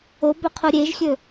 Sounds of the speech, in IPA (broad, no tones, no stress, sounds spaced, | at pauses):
o b ɵ qʰ o ɾʲ e ʒ xʲ ɵ